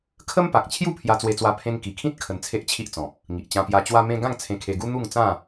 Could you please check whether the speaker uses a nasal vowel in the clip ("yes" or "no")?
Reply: yes